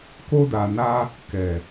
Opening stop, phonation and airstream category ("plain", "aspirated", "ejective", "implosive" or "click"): plain